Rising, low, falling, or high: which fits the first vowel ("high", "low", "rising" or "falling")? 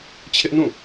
high